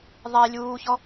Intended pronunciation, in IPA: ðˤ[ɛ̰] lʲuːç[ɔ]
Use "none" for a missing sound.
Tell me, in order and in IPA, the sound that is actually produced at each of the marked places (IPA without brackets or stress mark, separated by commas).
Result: ɛ, ɔ